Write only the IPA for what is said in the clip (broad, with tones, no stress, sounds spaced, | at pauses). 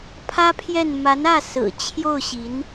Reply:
pʰ ä˥ pʰ j ɛ˥˩ n m a˧˥ n ä˥˩ s ɹ̩˨˩ t͡ɕʰ j o˥˩ ʊ̯ ɕ i˧˥ n